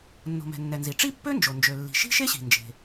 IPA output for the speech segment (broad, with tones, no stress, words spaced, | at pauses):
nːo̤˩mɛ̤˩nːɛ˩ nzi˩ʈ͡ʂi˥pːø˥nd͡ʒo˩ nd͡ʒø˩lːi̤˩ʃi̤˥ ʃe˥ɕi̤˩nd͡ʒe̤˩